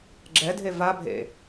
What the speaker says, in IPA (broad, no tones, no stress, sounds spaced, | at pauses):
ɡ͡ǁ ɛ dʱ e v a bʱ ḛ